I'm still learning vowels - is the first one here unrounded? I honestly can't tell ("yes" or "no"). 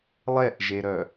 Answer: yes